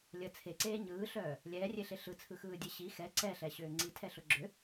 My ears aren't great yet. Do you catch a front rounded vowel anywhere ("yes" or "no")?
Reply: yes